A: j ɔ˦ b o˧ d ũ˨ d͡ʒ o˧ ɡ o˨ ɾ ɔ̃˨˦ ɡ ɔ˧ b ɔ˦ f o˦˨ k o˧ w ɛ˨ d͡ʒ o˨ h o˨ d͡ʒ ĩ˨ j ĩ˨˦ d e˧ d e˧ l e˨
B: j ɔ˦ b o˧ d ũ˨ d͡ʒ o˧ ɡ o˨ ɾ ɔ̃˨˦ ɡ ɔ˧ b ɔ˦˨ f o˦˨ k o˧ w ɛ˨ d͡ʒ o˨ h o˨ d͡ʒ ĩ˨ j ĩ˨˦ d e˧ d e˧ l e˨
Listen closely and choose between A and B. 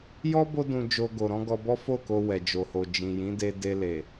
A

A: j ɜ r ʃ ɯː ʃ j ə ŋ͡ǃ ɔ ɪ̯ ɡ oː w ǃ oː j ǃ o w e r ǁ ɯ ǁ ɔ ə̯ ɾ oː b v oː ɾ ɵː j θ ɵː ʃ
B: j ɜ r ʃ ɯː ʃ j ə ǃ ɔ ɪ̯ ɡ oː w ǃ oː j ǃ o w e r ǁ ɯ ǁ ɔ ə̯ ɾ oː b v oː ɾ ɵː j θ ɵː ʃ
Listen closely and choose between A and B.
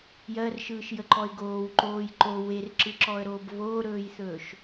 B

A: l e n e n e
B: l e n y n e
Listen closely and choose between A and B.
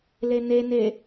A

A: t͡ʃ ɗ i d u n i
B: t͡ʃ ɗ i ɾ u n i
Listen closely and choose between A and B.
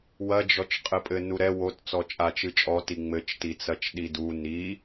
A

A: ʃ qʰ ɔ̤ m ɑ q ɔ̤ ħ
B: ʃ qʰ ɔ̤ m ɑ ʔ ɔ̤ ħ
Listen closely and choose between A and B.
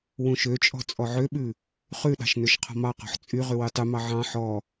A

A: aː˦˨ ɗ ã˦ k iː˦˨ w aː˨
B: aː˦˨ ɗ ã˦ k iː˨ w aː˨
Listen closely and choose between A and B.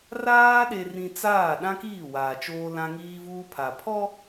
A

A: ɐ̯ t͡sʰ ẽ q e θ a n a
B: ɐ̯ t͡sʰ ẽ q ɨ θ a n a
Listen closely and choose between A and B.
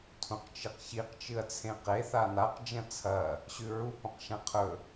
A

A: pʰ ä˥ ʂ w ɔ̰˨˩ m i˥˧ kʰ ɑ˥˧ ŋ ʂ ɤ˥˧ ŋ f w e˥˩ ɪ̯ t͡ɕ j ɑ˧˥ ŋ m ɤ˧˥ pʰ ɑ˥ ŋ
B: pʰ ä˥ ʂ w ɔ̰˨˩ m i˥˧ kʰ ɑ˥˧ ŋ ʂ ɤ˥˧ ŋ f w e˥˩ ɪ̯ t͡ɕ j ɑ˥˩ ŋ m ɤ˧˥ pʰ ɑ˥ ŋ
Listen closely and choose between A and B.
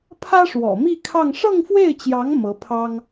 A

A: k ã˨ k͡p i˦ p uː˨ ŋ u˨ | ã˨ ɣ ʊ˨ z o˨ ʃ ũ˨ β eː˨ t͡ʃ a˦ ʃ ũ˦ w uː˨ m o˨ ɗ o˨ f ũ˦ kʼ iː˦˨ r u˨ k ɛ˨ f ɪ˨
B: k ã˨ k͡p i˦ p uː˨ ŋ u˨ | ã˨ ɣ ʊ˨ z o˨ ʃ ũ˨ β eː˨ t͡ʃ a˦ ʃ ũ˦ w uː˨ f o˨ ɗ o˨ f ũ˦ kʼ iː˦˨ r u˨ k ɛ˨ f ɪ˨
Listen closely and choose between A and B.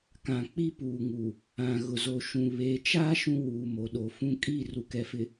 A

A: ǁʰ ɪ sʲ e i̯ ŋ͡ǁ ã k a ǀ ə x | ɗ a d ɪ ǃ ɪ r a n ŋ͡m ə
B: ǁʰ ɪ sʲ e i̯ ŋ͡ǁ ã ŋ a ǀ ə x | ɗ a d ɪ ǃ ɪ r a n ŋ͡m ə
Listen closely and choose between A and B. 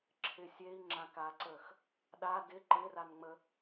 A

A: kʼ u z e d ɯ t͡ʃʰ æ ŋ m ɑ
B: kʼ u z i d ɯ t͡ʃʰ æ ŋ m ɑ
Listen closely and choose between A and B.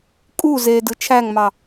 A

